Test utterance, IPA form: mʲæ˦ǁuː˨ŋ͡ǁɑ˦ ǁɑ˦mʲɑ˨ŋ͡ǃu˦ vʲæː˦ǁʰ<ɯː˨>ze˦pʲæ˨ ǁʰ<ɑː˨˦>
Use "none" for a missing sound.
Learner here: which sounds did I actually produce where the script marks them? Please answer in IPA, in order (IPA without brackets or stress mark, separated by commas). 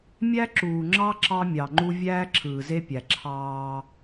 ɯː˨, ɑː˦